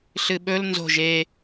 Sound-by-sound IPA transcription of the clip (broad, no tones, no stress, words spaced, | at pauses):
ɬɨɓɵl nzo̤ʒ e